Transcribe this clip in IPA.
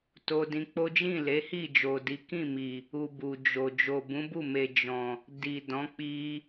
to˧dĩ˧k͡po˦ d͡ʒĩ˦˨le˨˦hi˦˨ d͡ʒo˨di˨˦kĩ˦˨mi˨ | u˨ bu˨d͡ʒo˨ d͡ʒo˨bũ˨˦bu˦˨me˨ d͡ʒɔ̃˨ | di˨dɔ̃˨˦ k͡pi˧

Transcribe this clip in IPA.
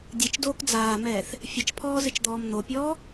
dʲɨt͡ʃdoːk d͡zaːmɛːθ | fʲɘt͡ʃpʰɔːzɨt͡ʃd̪ɔːm n̪opʲɔː

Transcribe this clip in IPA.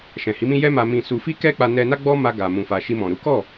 ʃɛ̃˨hi˨˦mĩ˦ jɛ˦ma˧mĩ˧ su˧fi˦kɛ˦k͡pa˧ nɛ˧na˦ ɡ͡bɔ˦ma˧ ɡa˨ mũ˨fa˨ʃi˧ mɔ̃˨ɾu˨˦ kɔ˦˨

